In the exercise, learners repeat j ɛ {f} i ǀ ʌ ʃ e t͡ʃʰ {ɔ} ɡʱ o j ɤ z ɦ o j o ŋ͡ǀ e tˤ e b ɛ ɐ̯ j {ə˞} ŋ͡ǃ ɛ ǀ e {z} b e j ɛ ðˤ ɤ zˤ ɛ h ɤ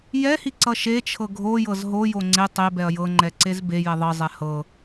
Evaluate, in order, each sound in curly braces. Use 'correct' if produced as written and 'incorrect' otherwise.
incorrect: h, incorrect: ɤ, incorrect: ɤ, correct

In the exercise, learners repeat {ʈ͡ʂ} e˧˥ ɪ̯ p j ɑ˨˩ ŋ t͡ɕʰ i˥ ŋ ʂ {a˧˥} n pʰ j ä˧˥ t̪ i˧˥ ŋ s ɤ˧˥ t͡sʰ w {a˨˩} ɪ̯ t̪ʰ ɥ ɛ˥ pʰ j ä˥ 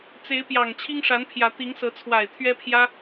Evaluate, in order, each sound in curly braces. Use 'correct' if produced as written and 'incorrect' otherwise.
incorrect: t͡s, correct, correct

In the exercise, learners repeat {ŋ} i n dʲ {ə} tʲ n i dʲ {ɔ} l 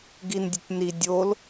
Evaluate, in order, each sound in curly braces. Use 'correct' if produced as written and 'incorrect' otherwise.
incorrect: ɡ, correct, incorrect: o

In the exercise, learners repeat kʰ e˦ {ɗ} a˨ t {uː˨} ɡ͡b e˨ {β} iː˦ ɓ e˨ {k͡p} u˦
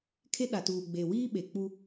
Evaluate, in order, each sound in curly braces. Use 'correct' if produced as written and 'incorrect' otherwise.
correct, correct, incorrect: w, correct

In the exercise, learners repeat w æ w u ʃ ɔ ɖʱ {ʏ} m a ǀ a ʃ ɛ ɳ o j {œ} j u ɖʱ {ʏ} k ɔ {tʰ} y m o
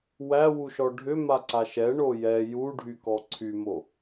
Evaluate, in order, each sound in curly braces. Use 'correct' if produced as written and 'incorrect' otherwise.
correct, incorrect: ɛ, incorrect: y, incorrect: ǀʰ

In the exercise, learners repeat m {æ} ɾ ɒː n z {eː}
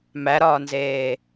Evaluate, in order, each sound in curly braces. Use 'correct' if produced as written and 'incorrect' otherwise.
correct, correct

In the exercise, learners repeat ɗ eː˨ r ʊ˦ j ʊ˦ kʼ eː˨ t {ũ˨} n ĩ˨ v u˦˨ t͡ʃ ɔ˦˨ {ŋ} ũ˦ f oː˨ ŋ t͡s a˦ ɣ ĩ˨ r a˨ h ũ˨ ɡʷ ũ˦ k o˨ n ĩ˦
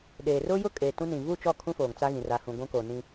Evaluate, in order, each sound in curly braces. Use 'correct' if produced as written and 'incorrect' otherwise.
incorrect: ũ˦, incorrect: kʰ

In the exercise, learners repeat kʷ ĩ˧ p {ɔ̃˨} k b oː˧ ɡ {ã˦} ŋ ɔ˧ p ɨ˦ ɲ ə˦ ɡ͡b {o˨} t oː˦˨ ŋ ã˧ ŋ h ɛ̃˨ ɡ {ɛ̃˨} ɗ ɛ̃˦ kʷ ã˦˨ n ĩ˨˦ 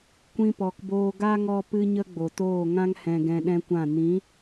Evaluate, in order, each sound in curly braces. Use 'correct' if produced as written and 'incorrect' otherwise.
incorrect: ɔ˨, incorrect: a˦, correct, incorrect: ɛ̃˧

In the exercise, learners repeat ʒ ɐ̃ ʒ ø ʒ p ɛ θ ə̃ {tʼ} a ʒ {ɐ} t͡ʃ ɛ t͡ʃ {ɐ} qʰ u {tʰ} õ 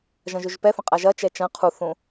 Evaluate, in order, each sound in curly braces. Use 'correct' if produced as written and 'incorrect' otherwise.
incorrect: qʼ, correct, incorrect: ɐ̃, incorrect: θ

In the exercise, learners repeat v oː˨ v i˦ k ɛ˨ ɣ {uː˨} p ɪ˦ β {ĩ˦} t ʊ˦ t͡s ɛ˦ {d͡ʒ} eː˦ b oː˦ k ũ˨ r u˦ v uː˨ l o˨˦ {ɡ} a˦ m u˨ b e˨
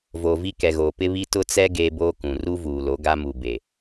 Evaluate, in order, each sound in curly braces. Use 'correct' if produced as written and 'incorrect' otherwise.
incorrect: oː˨, incorrect: i˦, incorrect: ɡ, correct

